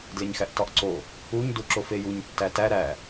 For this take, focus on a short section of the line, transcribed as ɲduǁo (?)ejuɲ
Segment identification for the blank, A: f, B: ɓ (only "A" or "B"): A